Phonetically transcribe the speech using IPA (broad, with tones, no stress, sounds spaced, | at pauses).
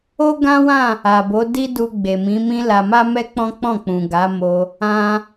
o˦ ɡ ã˦ w ã˦˨ | a˨ b o˨˦ d i˦ d u˧ ɡ͡b e˨ m ĩ˨˦ m ĩ˦ l a˧ m a˦ m ɛ˦ k͡p ɔ̃˦ k͡p ɔ̃˦˨ k͡p ũ˨ ɡ a˨˦ m o˧ | ã˧